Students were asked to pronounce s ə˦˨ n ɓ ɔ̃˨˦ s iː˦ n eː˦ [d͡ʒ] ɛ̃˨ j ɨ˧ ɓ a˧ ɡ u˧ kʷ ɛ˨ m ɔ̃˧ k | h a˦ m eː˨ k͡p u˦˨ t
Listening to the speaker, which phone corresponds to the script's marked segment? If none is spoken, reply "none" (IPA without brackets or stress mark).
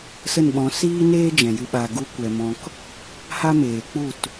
d͡ʒ